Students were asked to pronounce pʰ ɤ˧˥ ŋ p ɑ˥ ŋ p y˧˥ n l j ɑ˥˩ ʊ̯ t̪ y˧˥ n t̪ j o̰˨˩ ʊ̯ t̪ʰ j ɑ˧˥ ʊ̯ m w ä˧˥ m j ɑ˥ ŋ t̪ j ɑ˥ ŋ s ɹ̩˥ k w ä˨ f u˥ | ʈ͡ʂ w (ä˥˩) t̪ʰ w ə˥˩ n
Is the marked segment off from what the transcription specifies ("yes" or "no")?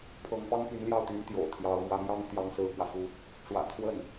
yes